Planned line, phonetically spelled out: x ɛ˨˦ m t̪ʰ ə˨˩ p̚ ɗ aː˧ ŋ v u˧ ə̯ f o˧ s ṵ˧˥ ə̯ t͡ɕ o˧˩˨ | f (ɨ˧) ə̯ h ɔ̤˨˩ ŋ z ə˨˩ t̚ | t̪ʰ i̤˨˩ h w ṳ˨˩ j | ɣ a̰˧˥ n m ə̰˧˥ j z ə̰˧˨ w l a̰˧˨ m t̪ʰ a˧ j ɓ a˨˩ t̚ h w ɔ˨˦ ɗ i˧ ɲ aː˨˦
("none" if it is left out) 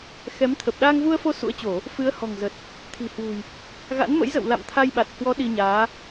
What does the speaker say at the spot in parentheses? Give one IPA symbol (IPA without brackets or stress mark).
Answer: ɨ˨˦